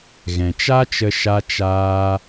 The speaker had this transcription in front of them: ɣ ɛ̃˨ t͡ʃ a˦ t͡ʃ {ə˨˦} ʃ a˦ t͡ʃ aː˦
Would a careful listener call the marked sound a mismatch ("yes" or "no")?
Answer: yes